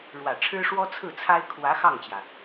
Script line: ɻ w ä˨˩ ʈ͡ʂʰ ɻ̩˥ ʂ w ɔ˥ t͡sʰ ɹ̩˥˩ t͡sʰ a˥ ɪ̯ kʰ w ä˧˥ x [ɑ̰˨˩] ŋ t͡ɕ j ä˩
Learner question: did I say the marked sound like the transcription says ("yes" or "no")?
no